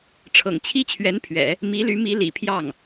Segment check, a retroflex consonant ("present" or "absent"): present